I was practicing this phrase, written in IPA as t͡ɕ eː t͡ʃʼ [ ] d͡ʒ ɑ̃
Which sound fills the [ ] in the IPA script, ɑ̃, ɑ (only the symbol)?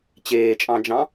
ɑ̃